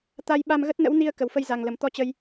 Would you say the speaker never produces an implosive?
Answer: no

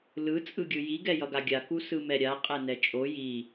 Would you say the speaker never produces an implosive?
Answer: yes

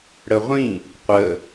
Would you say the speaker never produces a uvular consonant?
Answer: no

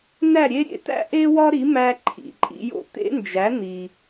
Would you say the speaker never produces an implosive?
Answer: yes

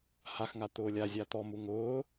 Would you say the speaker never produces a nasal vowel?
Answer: yes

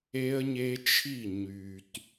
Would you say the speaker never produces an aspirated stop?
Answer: no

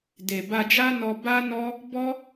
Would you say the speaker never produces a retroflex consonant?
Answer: yes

